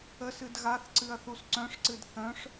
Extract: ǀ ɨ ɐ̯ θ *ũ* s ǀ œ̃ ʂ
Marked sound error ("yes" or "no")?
yes